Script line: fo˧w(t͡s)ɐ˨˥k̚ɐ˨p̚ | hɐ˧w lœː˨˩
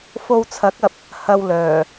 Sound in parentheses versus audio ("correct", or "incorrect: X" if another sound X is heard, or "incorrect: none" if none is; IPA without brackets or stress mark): incorrect: t͡sʰ